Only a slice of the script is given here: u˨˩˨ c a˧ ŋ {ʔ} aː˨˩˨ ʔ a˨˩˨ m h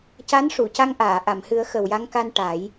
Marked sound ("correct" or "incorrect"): correct